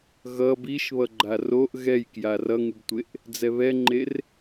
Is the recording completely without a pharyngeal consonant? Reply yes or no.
yes